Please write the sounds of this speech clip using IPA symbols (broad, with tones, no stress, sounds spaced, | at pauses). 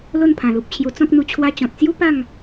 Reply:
l o˥˧ n pʰ ã˨˩ l u˨ p̚ t͡ɕʰ j u˧ t͡s ɔ̃˦ k̚ n̪ u˧ t͡ɕʰ w a˧ t͡ɕ ɔ̃˨ t̚ t͡s j u˦ p a˥˧ ŋ